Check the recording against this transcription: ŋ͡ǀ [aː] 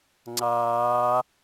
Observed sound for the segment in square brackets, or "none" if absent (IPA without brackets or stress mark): aː